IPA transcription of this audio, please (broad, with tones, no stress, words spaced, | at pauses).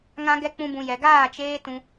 ŋã˦ɡɛ˦ k͡pũ˦bũ˧ jɛ˨ɡaː˦˨ t͡ʃeː˦tũ˧